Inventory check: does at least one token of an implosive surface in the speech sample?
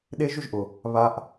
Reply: yes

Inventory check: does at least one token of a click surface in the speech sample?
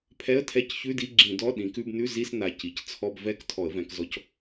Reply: yes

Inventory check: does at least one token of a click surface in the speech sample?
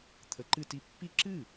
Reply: yes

